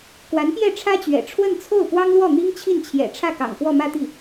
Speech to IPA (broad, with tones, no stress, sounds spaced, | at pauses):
k w a˧˥ n p j ɛ˥˩ ʈ͡ʂʰ ä˥ t͡ɕ ɥ ɛ̰˨˩ ʈ͡ʂʰ w ə˥˧ n t͡sʰ o˥˩ ʊ̯ p w ɑ˥ ŋ l w ɔ˥˩ n̪ i˥ ŋ t͡ɕʰ i˥˩ n t͡ɕʰ j ɛ̰˨˩ ʈ͡ʂʰ ä˥˩ k ɑ̰˨˩ ŋ k w ɔ˥˧ m ä˥˧ t̪ i˥˩